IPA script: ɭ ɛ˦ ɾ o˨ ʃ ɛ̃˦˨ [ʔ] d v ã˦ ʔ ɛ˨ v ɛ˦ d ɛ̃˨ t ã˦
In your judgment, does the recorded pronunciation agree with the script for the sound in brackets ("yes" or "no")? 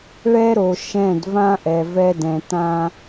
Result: no